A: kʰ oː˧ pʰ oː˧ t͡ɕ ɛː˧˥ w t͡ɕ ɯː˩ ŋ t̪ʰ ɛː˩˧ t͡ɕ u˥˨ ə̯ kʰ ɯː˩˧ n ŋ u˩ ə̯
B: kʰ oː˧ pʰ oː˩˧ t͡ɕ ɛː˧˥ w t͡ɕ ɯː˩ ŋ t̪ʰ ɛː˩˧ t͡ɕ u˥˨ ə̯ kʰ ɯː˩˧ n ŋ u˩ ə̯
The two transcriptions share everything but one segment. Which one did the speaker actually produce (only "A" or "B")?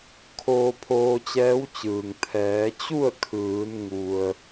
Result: A